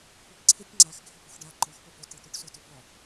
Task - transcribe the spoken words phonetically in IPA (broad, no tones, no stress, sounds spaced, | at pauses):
kʷʰ ɪ p ǀʰ ɪ tʲ ŋ͡ǀ a x ɡʱ ɪ p u x ɖ a ǃ ɔ x p ʊ p o t i t̪ u ʈ s o t ʊ b ɔ